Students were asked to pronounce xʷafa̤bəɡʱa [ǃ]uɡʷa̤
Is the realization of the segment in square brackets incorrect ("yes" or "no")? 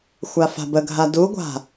yes